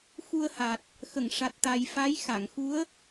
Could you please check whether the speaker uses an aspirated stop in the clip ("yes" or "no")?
no